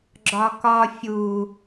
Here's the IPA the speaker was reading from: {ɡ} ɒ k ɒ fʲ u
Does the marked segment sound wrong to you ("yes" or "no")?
yes